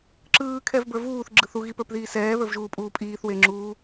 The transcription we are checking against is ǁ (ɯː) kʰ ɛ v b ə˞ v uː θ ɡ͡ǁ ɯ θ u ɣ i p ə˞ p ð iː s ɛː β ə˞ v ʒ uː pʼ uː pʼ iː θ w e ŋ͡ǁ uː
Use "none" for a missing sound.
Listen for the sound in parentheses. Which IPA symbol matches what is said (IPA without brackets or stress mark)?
ɯː